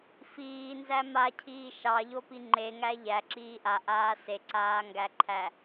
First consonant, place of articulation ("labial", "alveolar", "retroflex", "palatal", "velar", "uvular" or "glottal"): labial